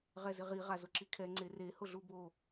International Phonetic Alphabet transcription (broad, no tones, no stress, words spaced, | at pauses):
ʁɛzɪʁi ʁazʊǁikʰɛ ŋ͡ǀere hʊɮubo